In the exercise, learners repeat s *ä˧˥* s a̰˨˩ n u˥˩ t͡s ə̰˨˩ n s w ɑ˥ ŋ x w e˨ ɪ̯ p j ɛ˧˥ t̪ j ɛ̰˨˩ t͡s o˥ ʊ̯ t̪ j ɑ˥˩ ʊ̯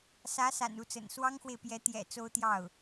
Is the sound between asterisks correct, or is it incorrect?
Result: correct